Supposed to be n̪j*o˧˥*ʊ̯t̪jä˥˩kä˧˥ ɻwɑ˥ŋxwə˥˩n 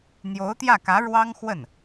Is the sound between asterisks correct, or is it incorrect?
correct